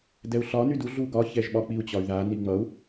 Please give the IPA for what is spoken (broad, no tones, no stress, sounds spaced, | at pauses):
d ɛ u̯ ɬ ɒ n y d u ɮ u ɡ ɒ ç ɛ ʒ ɓ ɒ k͡p i u̯ t͡ɕ ɒ y̯ ð a n i ŋ͡m ʌ u̯